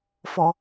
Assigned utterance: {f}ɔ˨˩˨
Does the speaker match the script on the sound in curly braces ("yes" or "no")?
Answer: yes